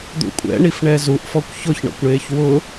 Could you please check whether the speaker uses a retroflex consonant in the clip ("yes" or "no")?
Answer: yes